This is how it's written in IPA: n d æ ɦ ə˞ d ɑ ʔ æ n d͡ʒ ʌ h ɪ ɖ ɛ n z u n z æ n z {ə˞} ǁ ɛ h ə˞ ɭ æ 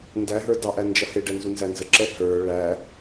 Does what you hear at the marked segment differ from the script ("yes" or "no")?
yes